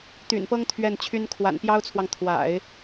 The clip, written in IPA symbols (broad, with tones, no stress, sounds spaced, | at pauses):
t̪ y̰˨˩ n p ɤ˥ ŋ t̪ʰ ɥ ɛ˥˩ n t͡ɕʰ y˥ n kʰ w a̰˨˩ n p j ɑ˥ ʊ̯ t͡sʰ w ɑ˨ ŋ t̪ʰ w a̰˨˩˦ ɪ̯